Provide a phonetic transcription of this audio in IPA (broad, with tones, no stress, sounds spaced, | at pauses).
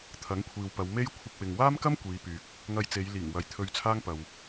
t̪ʰ ɐ˨˥ ŋ kʷʰ iː˨ w p ɐ˨˧ w m e˥ j kʷʰ ɪ˧ k̚ w ɪ˨ ŋ w aː˥ m k ɐ˥ m kʷ iː˨˧ p yː˨ k̚ | ŋ ɐ˧ j t͡s e˨˧ j l iː˨˩ ŋ w ɐ˨ j t̪ʰ ɵ˧ ɥ t͡sʰ aː˥ ŋ p ɐ˨ w